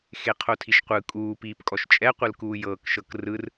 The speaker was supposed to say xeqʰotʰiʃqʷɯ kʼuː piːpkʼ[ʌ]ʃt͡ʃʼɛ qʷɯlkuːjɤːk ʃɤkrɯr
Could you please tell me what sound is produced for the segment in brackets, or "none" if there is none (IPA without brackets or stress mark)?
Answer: ɔ